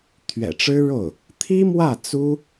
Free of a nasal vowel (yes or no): yes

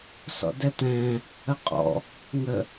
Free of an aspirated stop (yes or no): yes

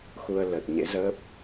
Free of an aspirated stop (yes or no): yes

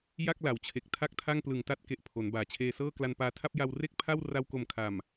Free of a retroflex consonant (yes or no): yes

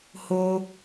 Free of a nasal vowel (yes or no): yes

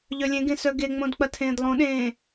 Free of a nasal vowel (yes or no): no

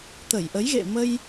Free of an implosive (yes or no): yes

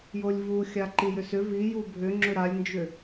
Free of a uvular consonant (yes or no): yes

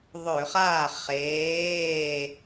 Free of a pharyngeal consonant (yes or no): yes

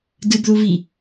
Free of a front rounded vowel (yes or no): yes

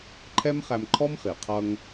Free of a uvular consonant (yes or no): no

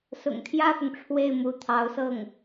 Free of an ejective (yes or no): yes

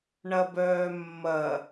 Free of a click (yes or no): yes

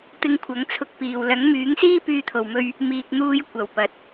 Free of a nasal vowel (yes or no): yes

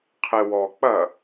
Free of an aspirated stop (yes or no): no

